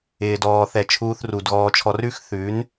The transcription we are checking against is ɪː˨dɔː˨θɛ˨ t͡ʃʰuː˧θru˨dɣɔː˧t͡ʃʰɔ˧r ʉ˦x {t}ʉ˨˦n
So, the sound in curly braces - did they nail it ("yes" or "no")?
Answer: no